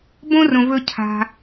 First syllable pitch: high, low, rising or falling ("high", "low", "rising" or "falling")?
high